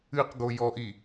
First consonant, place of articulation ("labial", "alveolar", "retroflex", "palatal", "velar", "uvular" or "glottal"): uvular